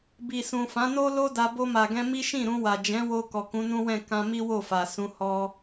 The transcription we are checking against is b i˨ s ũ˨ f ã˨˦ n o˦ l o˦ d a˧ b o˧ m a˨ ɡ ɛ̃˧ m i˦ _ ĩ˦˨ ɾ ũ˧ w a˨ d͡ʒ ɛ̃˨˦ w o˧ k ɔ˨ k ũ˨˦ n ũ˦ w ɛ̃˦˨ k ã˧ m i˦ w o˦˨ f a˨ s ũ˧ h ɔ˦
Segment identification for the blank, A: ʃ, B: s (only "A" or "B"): A